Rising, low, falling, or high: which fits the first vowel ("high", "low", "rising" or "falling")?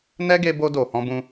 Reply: high